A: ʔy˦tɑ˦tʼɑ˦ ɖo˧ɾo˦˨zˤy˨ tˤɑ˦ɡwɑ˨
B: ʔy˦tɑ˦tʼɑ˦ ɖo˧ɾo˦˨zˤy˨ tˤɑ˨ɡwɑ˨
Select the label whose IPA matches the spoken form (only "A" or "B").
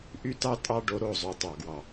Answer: B